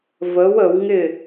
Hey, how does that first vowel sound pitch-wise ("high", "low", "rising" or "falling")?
rising